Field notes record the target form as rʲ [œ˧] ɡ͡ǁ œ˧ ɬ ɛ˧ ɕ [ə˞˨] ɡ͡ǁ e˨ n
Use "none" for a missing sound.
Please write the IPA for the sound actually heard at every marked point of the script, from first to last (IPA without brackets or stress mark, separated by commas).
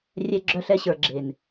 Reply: ɛ˧, ə˞˨